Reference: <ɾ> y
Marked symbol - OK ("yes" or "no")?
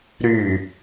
yes